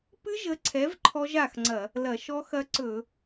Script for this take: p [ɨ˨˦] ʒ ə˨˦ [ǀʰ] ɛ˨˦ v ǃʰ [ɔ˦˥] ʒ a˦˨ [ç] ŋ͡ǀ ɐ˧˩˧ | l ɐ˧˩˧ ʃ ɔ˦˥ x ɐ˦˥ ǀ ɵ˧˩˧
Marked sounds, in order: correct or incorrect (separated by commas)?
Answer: incorrect, correct, correct, incorrect